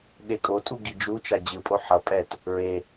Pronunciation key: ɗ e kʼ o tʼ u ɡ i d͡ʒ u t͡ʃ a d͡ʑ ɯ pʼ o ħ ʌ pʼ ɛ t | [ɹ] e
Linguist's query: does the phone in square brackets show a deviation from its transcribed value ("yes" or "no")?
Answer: no